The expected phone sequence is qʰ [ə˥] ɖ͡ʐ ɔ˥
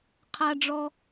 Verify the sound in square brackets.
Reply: incorrect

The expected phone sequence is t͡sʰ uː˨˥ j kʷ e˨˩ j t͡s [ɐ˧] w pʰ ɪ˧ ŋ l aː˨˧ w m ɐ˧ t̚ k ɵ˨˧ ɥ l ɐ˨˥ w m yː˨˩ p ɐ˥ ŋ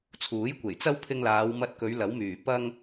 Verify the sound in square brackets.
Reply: incorrect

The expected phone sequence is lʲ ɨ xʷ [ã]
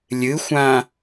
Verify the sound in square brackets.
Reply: correct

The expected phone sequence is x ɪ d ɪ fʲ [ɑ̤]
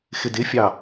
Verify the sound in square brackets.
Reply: incorrect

